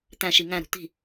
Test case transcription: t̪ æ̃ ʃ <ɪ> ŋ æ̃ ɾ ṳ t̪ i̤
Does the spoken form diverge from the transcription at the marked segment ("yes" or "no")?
yes